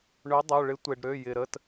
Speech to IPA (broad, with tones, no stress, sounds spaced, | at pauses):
ɳ ʏ˨˥ dˤ ø˩˧˩ ɭ ɪ˨˥ tʷ e˩ ɖ ɾ ø˩˧˩ j ɪ˩ ɾ ə˩˧˩ t